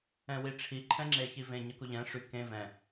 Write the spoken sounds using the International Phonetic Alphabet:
ɛ̃ w i ʈ͡ʂʰ i ǃʰ ɛ̃ ŋ͡ǁ e ç i v ẽ ɲ ə k u ʎ ɛ̃ ʂ y k ẽ v ɛ̃

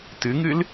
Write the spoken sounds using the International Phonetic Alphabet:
t ɨ ŋ ɨ l

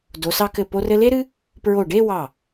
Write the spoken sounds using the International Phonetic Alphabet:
d o˩˧ s ɑ˧ k ɘ˧˩ p o˧ r ɘ˧ l e˥ ɾ ɨ˥ | p ɹ o˧˩ ɖ e˥˧ w ɑ˧˩

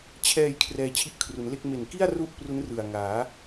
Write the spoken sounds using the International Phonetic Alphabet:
t͡ɕʰ ɛː˨˩ j kʰ r ɛː˧ t͡ɕʰ i˦˥ ʔ kʰ r u˩˦ n l e˥˩ k̚ m e˨˩ n k i˥˩ a̯ r u˥˩ ʔ p r u˦˥ n r ɯ˨˩ a̯ ŋ aː˩˦

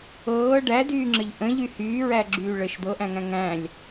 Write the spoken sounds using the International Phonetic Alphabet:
ɤː ɖ æ d yː ŋ͡ǁ ə ʎ ʔ ə̃ ʎ y h yː ɹ æ ɡ͡ǁ yː ɭ ə ʃ d̪ ɤ ʔ æ̃ ŋ æ̃ ŋ æ̃ lʲ

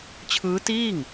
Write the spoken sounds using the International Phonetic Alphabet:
t͡ɕʰ ɯː˦˥ t iː˥˩ ŋ

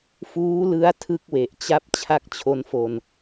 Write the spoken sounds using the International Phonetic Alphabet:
f uː˦˥ l ɯ˦˥ a̯ tʰ ɯ˥˩ k̚ w e˨˩ ʔ t͡ɕ a˥˩ p̚ t͡ɕʰ a˥˩ k̚ t͡ɕʰ o˦˥ n f o˧ n

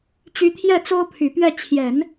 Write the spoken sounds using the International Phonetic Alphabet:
t͡ɕ y˧˥ t̪ʰ j ɛ˥˩ t͡s o˥ ʊ̯ pʰ y˨˩ p ɥ ɛ˥˩ t͡ɕʰ j ɛ˨˩˦ n

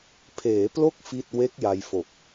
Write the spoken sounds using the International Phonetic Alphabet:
pʰ eː˩˦ p l o˦˥ k̚ f i˥˩ t̚ w e˦˥ k̚ j a˧ j f o˨˩ k̚

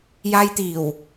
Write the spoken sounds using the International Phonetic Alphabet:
j aː˧ j t̪ iː˨˩ w

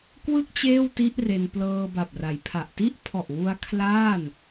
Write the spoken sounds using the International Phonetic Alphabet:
k w ɯ˥˩ k̚ t͡ɕ eː˥˩ w t i˦˥ ʔ r e˧ n p l ɤː˧ b a˨˩ p̚ r a˩˦ j pʰ a˨˩ ʔ t i˦˥ ʔ pʰ ɔ˨˩ ʔ w u˧ a̯ kʰ l aː˥˩ n

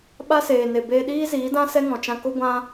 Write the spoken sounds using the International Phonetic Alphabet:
ɓ a˧ s eː˨ n e˨ b eː˧ ɗ iː˦ z iː˨˦ d ã˦ s ɛ˦ ŋ ɔ̃˨ t͡ʃ ã˧ k o˦ ɡʷ ã˧

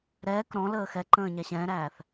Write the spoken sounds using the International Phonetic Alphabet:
ɾ ɛː k ɾ ɔ̃ l əː x ɛ ǃ ə̃ː ɲ æ ɕ ɛ̃ː ɾ æː θ

